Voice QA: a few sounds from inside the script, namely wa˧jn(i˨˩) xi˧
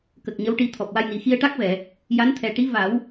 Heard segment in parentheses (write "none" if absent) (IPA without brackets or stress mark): i˨˩